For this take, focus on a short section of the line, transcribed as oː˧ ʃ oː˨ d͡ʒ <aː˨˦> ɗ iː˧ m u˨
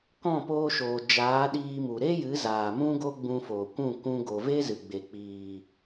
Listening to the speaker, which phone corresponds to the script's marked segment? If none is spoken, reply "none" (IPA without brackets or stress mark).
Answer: aː˨˦